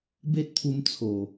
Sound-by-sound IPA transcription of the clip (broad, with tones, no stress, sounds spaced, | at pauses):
b e˦ t̚ t̪ʰ u˧ m t͡sʰ o˨˩